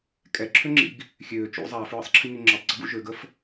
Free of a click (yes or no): no